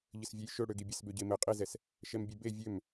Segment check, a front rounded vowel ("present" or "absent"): present